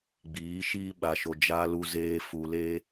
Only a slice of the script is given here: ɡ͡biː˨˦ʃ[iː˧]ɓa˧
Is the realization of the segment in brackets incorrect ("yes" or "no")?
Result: yes